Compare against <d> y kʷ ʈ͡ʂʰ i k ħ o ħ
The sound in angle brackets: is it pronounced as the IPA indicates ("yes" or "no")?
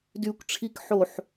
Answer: yes